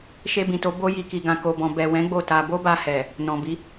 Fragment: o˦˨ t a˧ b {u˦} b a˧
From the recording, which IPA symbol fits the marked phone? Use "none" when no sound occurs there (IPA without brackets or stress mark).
o˦